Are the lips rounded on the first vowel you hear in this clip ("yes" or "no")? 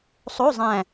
yes